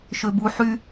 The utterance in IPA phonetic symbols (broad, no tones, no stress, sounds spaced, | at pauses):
ʃ ø b u ħ y